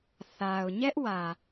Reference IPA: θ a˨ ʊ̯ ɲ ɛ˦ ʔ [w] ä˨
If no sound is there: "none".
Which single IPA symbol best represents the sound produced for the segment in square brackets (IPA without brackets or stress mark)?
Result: w